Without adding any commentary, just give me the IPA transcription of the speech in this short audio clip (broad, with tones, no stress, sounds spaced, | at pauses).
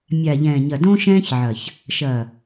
mʲ a˨ ʎ ɛ̃ː˨ ɲ ɐ˨ d õ˦ ʃ ɛ̃ː˦ ç ʕ ɐ˨ ç | ʃ ɐ˨